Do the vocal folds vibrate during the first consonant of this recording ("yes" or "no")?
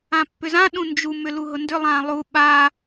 no